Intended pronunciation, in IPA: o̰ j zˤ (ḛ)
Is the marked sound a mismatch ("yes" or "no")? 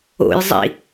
yes